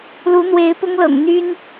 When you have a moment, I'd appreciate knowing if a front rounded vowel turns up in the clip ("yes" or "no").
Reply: yes